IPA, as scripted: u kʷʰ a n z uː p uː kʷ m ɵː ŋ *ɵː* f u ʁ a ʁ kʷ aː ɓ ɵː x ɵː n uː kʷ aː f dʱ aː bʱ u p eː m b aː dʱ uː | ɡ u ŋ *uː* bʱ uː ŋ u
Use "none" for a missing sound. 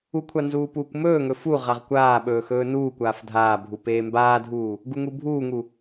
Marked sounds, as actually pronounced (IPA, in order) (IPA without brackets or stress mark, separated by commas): ɵ, u